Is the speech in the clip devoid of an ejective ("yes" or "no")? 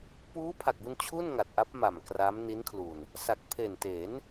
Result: yes